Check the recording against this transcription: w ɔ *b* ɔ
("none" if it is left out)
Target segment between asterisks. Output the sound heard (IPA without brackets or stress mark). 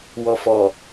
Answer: f